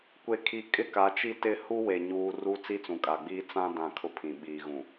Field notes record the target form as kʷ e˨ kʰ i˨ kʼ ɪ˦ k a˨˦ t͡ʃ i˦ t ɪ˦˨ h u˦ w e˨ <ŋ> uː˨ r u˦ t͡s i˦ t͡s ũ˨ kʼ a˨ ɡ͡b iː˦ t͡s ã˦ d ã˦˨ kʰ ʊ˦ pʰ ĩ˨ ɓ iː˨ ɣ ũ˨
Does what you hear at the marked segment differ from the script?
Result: yes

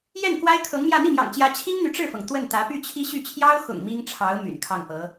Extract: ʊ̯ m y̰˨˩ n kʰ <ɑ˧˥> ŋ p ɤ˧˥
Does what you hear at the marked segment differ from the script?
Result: yes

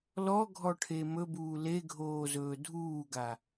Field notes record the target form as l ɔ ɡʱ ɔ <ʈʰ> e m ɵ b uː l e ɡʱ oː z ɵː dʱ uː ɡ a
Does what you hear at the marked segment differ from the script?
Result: no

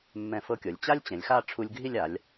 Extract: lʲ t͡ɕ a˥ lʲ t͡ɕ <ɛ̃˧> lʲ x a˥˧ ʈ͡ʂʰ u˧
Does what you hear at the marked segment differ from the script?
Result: yes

